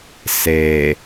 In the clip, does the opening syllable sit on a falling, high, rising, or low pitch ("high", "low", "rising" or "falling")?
low